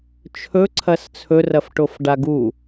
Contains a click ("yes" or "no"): yes